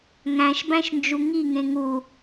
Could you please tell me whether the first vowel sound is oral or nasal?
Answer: nasal